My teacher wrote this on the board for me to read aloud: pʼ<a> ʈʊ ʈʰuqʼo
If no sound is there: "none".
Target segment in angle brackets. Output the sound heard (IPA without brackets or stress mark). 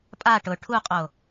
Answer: a